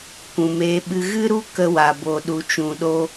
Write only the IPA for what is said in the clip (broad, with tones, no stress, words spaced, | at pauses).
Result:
kʷũ˨meː˧ɓɨ˧ ɣɨ˦ɾu˦ kə˧wa˨bo˨ ɗu˨t͡ʃũ˨ɗo˧